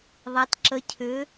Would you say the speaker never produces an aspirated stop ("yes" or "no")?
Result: no